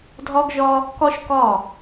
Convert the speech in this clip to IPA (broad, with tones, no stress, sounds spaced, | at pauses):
dʱ ɒ˦ ɡ ʒ ɒ˦ | k ɒ˦ ʃ k ɒ˦˨